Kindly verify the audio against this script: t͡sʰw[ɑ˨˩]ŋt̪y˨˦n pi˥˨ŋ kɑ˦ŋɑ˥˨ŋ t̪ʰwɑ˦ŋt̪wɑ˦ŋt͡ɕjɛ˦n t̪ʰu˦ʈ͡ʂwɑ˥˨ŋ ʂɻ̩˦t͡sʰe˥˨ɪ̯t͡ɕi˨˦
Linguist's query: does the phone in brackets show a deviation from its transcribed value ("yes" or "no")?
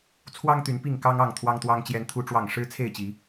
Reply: yes